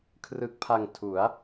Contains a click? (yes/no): no